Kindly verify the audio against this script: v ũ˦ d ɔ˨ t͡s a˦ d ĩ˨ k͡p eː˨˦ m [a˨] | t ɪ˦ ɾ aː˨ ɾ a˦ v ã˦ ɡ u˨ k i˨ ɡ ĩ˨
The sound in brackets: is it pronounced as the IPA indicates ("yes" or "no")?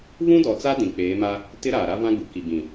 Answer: no